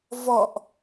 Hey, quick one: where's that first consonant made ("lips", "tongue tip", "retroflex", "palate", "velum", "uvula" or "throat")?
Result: lips